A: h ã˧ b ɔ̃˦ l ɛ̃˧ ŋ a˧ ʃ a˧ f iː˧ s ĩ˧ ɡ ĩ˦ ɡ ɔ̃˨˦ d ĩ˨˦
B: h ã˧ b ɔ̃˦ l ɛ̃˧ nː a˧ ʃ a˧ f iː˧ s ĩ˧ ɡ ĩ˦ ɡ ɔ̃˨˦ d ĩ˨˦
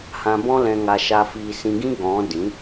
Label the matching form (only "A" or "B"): A